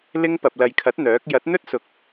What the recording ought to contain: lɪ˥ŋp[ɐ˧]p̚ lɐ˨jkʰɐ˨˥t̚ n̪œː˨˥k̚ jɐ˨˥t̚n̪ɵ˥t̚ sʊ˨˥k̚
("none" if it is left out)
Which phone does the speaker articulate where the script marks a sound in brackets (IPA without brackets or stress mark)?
ɐ˧